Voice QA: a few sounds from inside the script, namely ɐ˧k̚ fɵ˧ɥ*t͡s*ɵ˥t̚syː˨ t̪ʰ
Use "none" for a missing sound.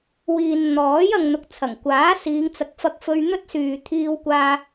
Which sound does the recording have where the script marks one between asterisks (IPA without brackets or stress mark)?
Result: n̪